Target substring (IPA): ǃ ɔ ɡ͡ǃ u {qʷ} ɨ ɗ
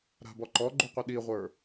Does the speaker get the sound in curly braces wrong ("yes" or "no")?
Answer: no